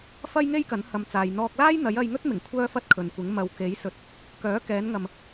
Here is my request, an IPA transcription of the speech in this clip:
f ɐ˥ j ŋ e˥ j k ɐ˨˥ n h ɐ˨ m t͡s aː˨ j n̪ ɔː˧ k̚ l aː˥ j n̪ ɐ˨˥ j ɐ˧ j ŋ ɵ˥ t̚ m ɪ˨˩ ŋ kʷʰ œː˥ f ɐ˥ t̚ kʰ ɵ˨ n kʷ ɪ˨˥ ŋ m ɐ˨ w k e˨˥ j s ɵ˨ t̚ | k œː˨˥ k ɛː˨˧ n ŋ ɐ˨ m

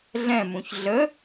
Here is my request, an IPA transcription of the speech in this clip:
ɮ ɛ̃ m ũ ç ɮ ə

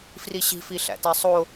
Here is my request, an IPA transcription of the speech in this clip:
f r i ɕ i̤ f i ɬ æ̰ t æ sˤ o

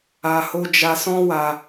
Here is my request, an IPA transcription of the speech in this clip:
a˧ h o˦ d͡ʒ a˧ s ɔ̃˦ w a˧

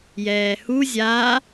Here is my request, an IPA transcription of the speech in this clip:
j ɛː h u zʲ a

